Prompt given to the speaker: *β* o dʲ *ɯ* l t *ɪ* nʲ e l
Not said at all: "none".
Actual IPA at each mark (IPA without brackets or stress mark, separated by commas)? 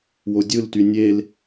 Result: w, ɯ, y